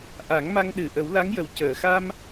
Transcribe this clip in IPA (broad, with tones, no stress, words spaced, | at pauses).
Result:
ʔa˨˩˦ŋma˧ŋɗɨ˨˩ ʔə˨˩˦wla˧˥ŋjə˨˩w cəː˨˩˨xa˧m